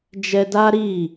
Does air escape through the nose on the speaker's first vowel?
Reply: no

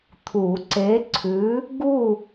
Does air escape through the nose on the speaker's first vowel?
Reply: no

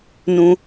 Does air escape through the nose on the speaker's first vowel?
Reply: yes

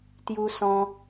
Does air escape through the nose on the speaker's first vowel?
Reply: no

